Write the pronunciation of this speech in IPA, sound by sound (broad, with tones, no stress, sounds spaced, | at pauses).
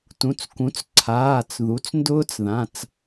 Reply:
t ũ˩˧˩ t͡s k ũ˩˥ t͡s ǀʰ aː˩˧˩ t͡s ð u˩˥ t͡s n d ʊː˦˥ t͡s ð ã˩˧˩ t͡s